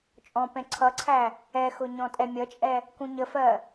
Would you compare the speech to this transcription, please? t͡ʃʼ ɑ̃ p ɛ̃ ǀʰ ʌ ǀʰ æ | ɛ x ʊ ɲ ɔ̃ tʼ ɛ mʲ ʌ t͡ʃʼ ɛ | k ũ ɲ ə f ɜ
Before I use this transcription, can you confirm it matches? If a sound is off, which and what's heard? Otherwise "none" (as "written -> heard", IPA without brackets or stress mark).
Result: ɑ̃ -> ɔ̃